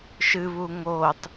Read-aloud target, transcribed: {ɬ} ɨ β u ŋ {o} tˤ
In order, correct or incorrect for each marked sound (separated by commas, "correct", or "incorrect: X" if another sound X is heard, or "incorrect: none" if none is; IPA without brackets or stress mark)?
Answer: incorrect: ʃ, correct